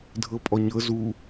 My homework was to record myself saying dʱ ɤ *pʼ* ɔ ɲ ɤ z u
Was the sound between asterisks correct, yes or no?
yes